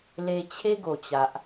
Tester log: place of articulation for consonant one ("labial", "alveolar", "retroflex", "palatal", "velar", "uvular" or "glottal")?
alveolar